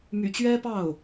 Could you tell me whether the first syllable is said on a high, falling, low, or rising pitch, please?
low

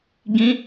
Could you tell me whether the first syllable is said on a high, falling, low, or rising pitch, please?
high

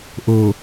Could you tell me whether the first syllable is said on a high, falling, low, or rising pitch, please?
low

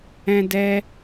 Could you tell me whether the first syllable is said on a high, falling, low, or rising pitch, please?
high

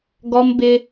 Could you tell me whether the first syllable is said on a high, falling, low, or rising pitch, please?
high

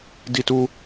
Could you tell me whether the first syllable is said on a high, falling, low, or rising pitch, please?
high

